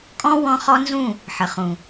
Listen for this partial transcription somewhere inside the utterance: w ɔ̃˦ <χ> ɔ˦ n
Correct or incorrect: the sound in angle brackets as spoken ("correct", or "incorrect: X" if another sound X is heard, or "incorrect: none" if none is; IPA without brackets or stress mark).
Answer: correct